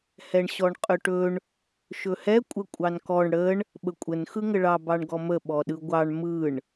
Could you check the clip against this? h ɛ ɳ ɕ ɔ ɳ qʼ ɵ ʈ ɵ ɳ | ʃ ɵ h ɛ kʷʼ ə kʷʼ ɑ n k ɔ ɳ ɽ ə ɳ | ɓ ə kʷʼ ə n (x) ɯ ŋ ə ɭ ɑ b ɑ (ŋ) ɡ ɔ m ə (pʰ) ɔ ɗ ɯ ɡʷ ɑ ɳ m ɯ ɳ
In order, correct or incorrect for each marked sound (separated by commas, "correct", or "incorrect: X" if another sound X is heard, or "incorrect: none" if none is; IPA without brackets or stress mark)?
correct, incorrect: ɳ, incorrect: ɓ